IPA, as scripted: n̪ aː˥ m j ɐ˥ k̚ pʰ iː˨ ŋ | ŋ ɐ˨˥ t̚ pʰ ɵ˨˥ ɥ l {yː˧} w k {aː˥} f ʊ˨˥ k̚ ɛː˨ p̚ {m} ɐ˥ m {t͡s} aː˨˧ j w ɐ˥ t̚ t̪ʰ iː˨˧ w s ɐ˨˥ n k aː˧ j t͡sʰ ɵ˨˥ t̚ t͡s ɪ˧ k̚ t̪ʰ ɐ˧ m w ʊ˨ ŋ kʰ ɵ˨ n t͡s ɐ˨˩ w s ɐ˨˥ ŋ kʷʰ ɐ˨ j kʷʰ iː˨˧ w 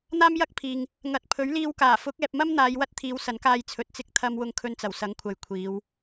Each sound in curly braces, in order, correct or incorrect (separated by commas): incorrect, incorrect, correct, incorrect